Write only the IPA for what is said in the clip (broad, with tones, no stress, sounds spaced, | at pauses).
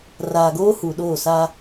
r aː˨ ɡ oː˦ h u˨ ɗ oː˦˨ s a˦